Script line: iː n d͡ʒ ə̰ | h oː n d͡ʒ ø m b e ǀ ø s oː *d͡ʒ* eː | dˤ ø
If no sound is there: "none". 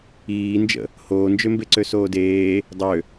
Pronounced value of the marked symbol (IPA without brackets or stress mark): d